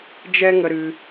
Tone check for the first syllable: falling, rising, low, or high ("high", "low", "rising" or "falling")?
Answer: high